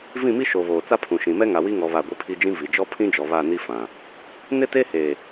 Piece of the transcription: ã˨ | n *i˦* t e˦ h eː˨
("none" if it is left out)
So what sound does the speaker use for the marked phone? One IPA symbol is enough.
ɪ˦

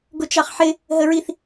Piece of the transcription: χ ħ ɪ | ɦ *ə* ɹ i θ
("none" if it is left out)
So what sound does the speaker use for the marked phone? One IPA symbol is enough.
ə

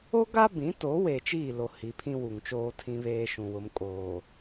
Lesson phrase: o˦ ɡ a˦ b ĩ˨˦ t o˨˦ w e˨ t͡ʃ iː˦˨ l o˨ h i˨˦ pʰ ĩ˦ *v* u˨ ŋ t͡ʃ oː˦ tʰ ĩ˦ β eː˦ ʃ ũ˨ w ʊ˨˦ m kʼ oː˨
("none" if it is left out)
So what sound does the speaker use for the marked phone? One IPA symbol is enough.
w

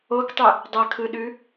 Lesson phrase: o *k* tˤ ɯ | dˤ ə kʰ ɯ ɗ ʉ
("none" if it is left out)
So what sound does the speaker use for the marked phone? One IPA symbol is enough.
k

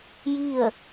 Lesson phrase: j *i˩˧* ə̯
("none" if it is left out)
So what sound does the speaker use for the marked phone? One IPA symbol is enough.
i˥˨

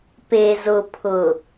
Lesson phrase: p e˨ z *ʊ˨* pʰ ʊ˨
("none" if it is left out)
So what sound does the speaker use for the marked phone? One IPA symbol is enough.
ʊ˨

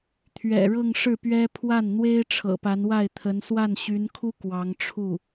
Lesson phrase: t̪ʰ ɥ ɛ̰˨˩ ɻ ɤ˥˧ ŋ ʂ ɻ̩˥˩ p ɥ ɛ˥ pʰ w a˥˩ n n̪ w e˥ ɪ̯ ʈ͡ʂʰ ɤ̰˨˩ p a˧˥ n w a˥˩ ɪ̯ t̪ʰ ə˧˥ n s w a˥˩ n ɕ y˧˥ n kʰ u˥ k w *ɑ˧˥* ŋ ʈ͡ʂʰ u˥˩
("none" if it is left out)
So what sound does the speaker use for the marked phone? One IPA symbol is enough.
ɑ˧˥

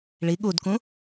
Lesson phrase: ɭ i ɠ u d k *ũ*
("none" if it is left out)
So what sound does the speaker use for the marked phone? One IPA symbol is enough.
ũ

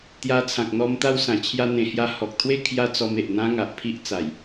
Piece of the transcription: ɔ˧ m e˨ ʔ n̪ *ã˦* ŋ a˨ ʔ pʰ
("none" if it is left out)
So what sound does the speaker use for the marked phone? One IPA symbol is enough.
ã˦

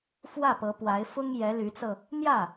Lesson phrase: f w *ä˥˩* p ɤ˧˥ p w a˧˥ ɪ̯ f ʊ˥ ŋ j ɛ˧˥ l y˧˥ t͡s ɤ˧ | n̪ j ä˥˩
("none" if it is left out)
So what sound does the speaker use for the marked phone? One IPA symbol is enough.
ä˥˩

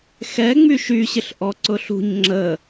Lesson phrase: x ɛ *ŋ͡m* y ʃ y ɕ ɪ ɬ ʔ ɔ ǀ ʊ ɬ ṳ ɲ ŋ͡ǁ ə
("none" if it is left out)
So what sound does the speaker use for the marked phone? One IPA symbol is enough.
ŋ͡m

